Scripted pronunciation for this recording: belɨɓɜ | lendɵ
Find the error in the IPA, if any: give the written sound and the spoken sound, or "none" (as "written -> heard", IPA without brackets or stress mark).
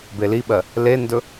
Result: ɨ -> i